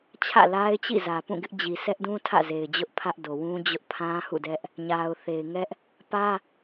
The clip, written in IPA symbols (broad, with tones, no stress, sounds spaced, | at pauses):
t͡ɕʰ ä̰˦˨ l a˦ ɪ̯ t͡ɕ ḭ˦˨ z ä˨ p ũ˦˨ ɡ ɪ˦ ʔ d͡ʑ i˨ sʰ ɛ˦ ʔ d ũ˦ tʰ ä̰˦˨ z e˨ ɪ̯ d͡ʑ ʊ˦ ʔ pʰ ä˦ ʔ d o˨ w ũ˦ d͡ʑ ʊ˦ ʔ pʰ ã˦ h ṵ˦˨ d ɛ˦ ʔ | ɲ a˨ ʊ̯ θ e˨ ɪ̯ ŋ ɛ˦ ʔ | p ä˦